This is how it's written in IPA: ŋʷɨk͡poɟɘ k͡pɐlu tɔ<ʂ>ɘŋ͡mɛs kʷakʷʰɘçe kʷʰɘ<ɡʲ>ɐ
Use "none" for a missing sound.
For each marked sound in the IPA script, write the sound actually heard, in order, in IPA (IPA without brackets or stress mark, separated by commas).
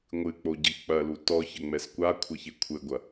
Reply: ç, ɡʷ